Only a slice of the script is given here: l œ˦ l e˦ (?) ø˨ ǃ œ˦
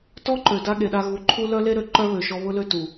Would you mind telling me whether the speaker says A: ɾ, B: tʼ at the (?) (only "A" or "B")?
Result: A